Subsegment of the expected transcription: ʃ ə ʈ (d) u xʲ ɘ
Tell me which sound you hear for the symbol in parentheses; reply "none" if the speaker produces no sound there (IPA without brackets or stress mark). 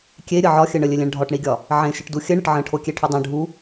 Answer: d